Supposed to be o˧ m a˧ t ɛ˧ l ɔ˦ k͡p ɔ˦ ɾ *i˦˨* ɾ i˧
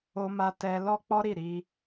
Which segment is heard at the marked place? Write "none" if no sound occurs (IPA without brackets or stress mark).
i˦˨